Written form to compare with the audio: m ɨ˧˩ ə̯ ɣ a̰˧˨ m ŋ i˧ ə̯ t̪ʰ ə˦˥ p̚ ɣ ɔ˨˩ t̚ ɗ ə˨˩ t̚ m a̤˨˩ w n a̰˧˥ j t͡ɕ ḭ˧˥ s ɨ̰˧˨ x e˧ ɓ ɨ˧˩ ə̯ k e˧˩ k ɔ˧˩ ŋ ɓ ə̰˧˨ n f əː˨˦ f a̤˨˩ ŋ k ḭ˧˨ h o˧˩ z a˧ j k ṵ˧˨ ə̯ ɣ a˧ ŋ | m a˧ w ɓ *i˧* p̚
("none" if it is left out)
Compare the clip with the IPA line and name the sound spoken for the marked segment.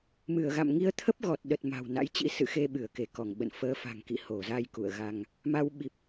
i˨˩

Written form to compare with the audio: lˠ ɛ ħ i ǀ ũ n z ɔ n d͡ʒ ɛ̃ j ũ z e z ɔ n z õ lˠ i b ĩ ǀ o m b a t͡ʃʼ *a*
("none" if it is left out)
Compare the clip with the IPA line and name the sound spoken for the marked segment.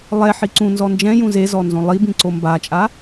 a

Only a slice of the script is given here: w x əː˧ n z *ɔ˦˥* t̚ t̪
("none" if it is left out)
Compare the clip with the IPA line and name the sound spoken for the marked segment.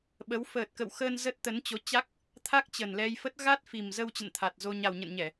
ə˦˥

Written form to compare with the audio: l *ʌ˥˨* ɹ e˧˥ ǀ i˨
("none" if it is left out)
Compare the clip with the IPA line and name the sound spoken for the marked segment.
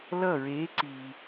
ʌ˥˨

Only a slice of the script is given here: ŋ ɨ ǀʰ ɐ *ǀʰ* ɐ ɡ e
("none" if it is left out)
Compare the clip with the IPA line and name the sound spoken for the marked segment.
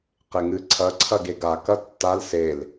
ǀʰ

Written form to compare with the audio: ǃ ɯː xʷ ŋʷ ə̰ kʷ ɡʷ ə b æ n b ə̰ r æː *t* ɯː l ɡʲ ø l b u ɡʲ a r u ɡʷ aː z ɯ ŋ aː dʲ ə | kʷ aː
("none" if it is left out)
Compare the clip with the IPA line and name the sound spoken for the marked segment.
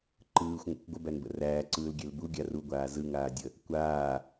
ǀ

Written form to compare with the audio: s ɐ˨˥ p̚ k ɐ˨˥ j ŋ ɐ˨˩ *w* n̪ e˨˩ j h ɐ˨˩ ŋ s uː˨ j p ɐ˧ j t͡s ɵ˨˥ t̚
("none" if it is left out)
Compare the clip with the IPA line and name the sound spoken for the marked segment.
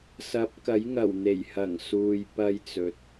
w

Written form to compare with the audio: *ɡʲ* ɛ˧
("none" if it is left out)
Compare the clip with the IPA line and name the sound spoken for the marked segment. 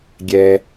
ɡʲ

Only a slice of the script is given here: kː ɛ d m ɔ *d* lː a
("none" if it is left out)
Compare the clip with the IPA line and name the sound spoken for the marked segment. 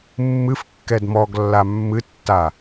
ɡ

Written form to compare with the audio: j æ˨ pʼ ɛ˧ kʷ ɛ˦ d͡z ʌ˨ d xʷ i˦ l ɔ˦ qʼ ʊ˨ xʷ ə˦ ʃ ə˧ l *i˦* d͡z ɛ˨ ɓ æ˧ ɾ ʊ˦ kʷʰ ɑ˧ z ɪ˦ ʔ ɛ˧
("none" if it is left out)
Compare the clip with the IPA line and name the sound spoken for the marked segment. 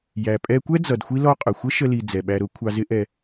i˨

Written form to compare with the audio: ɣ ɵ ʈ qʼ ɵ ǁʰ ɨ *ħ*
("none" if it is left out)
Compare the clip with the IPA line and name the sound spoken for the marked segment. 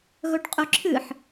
ħ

